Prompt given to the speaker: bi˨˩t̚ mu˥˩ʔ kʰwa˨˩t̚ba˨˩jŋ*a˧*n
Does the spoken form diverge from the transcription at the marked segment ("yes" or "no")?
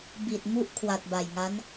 yes